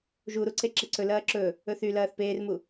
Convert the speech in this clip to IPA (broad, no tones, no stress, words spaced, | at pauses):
ʒuɾu ǀeǁeǀɵ lɐːǁɵ | ɵθy lɐːθpeːrmu